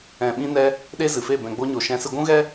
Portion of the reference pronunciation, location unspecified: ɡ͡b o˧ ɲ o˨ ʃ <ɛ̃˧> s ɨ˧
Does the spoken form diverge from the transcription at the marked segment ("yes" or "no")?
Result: no